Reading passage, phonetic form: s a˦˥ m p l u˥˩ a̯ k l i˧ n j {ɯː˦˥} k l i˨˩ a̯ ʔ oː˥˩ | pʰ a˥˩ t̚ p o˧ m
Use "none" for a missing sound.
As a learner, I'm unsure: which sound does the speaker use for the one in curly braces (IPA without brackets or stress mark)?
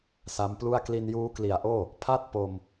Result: uː˦˥